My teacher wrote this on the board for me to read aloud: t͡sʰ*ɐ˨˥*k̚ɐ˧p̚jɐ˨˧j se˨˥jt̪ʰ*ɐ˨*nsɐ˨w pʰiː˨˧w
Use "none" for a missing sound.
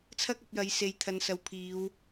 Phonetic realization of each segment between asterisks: ɐ˥, ɐ˨

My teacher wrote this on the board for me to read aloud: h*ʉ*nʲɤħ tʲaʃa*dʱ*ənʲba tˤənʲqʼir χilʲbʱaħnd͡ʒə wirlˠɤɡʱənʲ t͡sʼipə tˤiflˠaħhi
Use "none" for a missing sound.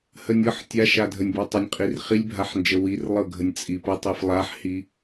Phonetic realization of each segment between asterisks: ə, dʱ

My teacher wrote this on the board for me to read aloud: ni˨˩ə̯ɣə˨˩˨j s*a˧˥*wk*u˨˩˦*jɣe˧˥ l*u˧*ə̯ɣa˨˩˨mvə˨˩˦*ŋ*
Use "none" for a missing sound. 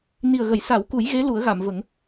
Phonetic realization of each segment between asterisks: a˨˩˦, u˨˩˦, u˨˩˦, ŋ

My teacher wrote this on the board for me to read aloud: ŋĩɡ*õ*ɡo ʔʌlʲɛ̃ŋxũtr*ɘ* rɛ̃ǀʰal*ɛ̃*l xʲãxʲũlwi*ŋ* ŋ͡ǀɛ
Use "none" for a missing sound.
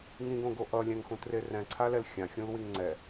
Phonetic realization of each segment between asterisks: õ, e, ɛ, ŋ

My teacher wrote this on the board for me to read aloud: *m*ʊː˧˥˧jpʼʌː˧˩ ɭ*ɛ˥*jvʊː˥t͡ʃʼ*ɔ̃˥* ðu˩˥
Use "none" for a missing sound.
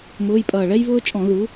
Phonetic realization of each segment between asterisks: m, ɛ˥, ɔ̃˧˩˧

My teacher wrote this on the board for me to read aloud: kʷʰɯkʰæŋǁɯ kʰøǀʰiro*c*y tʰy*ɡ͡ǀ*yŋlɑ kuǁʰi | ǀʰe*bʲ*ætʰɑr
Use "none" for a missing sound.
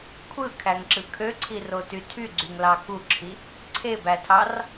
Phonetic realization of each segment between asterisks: t, ɡ͡ǀ, b

